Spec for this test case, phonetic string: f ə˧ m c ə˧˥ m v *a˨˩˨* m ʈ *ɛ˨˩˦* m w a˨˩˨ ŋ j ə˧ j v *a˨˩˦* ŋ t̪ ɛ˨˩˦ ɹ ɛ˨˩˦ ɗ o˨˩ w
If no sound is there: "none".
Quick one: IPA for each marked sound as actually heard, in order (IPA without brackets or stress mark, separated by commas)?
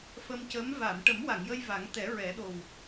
a˨˩˨, ə˨˩˦, a˨˩˦